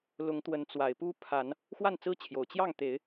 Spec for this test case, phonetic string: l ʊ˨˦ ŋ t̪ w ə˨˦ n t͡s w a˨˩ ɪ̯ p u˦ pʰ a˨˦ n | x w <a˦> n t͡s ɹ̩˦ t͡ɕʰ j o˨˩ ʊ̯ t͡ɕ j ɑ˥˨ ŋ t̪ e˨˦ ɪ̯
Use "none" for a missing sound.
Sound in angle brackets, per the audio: a˥˨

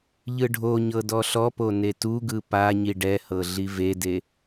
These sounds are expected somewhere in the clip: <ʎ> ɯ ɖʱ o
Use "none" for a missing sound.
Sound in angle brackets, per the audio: ʎ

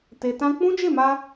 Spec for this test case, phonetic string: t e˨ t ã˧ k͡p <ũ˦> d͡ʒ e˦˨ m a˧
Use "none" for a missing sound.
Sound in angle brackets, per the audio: ũ˦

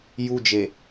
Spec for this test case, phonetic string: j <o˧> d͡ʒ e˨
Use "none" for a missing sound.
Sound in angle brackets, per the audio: u˧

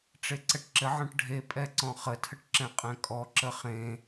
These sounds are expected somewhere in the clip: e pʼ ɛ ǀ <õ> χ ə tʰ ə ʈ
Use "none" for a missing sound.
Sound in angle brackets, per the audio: ɔ̃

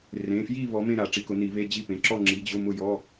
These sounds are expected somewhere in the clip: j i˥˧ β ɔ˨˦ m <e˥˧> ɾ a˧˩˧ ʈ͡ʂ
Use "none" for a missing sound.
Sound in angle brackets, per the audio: ẽ˥˧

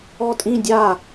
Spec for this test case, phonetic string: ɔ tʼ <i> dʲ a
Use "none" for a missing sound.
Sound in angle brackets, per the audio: ĩ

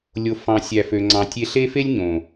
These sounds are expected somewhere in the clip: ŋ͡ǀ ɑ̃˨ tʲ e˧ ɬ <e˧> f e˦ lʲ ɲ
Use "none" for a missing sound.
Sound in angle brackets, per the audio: e˦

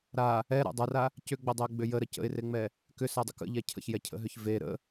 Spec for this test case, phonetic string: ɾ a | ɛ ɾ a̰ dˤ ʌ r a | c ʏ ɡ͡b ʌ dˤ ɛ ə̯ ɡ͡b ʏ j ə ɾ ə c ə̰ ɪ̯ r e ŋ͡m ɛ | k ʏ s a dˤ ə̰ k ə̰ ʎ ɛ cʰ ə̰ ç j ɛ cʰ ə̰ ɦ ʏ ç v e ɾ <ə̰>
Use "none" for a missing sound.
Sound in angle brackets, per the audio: ə̰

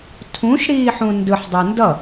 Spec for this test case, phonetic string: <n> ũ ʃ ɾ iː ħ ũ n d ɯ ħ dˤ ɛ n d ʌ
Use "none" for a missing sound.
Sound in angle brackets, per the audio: tʰ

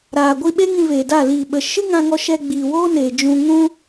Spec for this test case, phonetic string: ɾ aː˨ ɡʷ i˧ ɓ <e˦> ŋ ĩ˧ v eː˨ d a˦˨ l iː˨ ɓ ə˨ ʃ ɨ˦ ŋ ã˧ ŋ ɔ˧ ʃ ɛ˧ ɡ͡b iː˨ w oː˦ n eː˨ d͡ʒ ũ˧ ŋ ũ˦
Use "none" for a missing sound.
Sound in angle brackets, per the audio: e˦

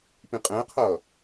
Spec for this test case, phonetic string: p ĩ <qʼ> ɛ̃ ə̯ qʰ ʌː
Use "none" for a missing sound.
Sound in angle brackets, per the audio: qʼ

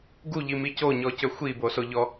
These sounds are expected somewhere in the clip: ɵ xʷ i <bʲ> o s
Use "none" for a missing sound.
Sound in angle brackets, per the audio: b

